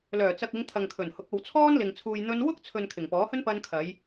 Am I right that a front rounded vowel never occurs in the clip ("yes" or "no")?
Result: no